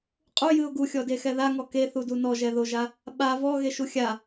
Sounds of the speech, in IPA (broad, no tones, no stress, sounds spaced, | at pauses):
qʼ u j ɨ ʊ̯ ɡ u xʲ ɔ d e x ɛ ð a ŋ ɔ k e θ u d u n ɔ ʒ ɛ ð o ʒ a | ɓ a v ɔ ɣ e ʃ u xʲ a